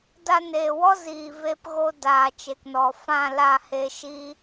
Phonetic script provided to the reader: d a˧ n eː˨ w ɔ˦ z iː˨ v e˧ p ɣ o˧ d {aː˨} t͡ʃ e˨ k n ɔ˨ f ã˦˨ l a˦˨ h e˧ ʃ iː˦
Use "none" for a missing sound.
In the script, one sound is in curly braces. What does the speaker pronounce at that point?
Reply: aː˨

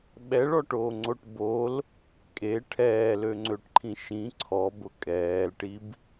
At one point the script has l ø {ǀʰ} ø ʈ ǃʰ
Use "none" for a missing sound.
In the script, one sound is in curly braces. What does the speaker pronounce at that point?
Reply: ŋ͡ǀ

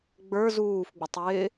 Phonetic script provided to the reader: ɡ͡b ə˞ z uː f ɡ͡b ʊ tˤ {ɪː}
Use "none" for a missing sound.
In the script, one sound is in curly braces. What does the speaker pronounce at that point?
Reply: ɪː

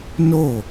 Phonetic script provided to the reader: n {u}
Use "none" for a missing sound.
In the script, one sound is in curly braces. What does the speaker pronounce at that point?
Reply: o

